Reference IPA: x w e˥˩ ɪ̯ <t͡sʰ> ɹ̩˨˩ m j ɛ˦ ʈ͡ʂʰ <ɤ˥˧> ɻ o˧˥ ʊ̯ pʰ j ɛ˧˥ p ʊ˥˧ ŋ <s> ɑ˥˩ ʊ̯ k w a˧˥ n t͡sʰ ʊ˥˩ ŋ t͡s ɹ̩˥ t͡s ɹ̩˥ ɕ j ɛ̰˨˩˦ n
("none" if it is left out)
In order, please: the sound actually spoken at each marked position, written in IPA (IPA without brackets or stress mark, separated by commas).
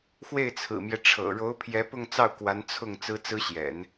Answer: t͡sʰ, ɤ̰˨˩, t͡s